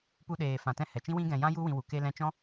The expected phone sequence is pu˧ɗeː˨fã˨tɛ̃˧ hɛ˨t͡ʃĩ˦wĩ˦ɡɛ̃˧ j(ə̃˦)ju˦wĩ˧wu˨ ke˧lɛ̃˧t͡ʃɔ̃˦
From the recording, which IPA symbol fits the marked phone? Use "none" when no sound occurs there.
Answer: ã˦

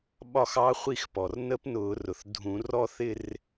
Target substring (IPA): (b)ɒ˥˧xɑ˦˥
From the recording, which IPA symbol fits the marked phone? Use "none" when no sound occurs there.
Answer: ɓ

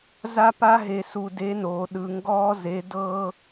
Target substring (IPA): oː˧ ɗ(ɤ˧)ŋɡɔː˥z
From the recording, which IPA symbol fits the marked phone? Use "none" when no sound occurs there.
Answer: ɯ˧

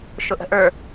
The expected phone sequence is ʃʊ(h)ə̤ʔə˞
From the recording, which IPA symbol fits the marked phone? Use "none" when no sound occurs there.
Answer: ʔ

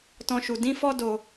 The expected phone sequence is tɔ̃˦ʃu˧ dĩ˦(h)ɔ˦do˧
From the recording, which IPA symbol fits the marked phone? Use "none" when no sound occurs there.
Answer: f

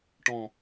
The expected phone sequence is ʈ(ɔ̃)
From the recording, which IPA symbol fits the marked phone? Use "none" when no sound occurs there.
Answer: ɔ̃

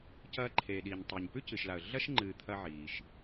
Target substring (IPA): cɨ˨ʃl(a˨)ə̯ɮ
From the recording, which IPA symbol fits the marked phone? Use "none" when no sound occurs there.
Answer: a˨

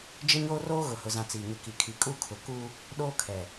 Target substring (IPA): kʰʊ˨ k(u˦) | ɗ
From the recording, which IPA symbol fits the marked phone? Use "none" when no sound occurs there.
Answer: u˦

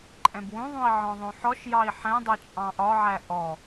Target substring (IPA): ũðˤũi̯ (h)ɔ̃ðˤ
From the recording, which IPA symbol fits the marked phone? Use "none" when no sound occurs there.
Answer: ʕ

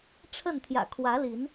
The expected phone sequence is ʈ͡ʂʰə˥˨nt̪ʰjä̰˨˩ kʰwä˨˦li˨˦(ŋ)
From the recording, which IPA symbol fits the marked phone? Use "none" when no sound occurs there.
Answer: n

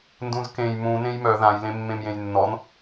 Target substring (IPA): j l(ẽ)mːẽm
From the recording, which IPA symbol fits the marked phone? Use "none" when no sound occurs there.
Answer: ẽ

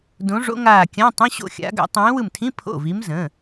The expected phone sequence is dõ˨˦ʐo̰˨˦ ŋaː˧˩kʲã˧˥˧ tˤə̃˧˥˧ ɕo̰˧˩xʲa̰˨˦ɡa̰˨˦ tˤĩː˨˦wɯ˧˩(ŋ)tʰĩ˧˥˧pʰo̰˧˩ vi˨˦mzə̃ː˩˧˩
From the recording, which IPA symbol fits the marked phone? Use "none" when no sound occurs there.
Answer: m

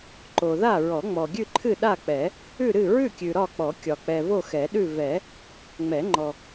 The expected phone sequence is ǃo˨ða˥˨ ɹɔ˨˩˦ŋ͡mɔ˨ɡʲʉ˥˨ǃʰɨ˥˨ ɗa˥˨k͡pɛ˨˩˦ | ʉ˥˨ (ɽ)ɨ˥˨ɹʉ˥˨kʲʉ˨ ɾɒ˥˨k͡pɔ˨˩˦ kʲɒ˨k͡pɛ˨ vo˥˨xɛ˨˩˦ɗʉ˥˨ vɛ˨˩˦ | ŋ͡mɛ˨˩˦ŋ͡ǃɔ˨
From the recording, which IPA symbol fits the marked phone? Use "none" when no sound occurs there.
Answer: ɾ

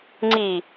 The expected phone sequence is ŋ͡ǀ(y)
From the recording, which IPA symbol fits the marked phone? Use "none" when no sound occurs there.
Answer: i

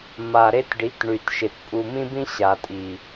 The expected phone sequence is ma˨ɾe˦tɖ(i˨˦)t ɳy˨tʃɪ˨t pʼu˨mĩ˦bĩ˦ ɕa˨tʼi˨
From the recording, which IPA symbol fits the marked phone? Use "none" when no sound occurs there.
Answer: i˨˦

